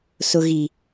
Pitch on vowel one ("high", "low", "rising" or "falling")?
low